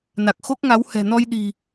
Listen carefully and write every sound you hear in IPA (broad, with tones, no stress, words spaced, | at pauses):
na˨˩k̚xo˦˥k̚ŋa˨˦w hɛ̤˨˩nɔ˧j ɗi̤˨˩